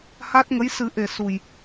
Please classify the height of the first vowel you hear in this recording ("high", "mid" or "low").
low